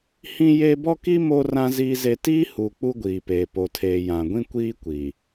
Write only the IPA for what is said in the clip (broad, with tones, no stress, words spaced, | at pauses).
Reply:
hĩ˦je˦ bɔ˦ki˦ mo˦rã˦ ziː˦ze˦ tiː˦hu˨ k͡pu˦ɡʷiː˨peː˨ po˨tʰeː˨ jã˨ɡʷĩ˦kʷiː˦kʷi˨